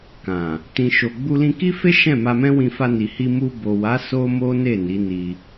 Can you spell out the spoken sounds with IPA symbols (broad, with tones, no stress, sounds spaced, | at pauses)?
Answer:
k ã˨ | t ĩ˨ ʃ o˨ ɡ͡b u˧ l ĩ˧ k i˦ f e˦ ʃ ɛ̃˦˨ m a˧ m ɛ̃˦ w ĩ˧ f a˧ n i˨ h i˧ m u˧ b o˨ w a˨˦ s o˦ m o˦ n e˦˨ n i˨˦ n i˧